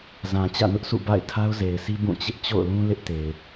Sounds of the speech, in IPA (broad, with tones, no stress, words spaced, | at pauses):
zã˨ t͡ɕä̰˦˨nʊ˦ʔsʰṵ˦˨ ba̰˦˨ɪ̯ tʰa˦ʊ̯ze˨ɪ̯sʰi˦ bũ˦˨t͡ɕɪ˦ʔ t͡ɕo̰˦˨ʊ̯lũ˦ lɪ˦ʔte˨ɪ̯